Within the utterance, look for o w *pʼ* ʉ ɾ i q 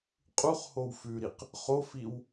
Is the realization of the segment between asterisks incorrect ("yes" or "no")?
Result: yes